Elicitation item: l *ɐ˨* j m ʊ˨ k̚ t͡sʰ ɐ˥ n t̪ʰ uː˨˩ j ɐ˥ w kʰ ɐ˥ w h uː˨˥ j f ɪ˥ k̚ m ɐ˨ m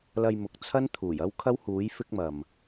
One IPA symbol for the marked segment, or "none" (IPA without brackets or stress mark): ɐ˧